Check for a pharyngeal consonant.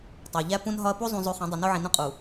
present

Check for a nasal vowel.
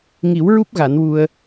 absent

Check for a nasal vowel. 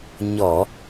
absent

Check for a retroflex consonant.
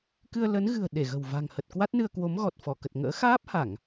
absent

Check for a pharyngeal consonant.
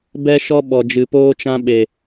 absent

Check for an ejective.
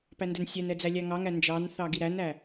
absent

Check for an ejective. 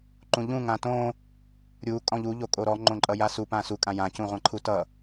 present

